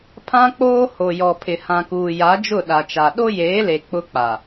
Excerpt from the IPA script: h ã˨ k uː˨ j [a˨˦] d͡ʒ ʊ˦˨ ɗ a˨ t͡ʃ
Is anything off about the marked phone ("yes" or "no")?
no